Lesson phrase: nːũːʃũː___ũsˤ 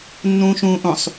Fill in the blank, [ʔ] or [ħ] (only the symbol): ʔ